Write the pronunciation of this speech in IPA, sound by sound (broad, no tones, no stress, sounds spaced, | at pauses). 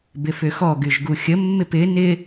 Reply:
b ɪ f ʏ x ɔ ɡ y ʒ ɡ u xʲ ə mː ɪ p ɪ n ɪ